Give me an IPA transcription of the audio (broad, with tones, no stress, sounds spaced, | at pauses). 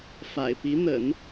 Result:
f a̰˨˩ ɪ̯ p i˧˥ n̪ ə̰˨˩˦ n